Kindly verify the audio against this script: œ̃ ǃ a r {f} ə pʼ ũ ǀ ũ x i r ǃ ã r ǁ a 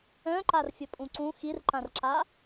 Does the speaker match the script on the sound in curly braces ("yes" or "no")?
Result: no